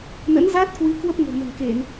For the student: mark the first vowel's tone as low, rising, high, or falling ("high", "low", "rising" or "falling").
rising